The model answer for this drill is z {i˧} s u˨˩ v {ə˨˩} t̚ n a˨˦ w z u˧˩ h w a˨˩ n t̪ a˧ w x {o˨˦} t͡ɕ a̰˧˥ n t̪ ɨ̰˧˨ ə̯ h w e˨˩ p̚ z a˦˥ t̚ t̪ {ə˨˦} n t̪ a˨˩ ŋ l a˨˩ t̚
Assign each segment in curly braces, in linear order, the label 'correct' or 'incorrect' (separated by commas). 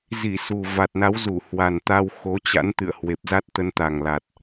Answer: incorrect, incorrect, correct, incorrect